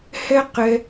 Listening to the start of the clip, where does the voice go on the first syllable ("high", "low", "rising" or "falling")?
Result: high